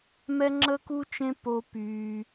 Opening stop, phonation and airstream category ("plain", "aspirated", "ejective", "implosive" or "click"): click